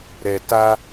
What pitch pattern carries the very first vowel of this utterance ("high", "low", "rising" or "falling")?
low